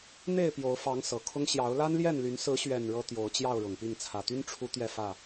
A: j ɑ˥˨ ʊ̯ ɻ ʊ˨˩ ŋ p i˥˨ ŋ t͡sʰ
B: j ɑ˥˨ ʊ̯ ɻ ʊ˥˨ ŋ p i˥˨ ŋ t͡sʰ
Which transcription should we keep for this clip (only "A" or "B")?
A